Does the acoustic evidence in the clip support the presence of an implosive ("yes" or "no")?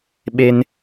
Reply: yes